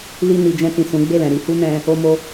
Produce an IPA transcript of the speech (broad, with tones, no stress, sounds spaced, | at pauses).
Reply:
l i˧ n i˨ d͡ʒ ɛ̃˧ t ĩ˨ s ũ˨˦ ɡ͡b e˦˨ l ɛ̃˨ ɾ i˧ h u˦ n ɛ̃˧ | o˦ m o˦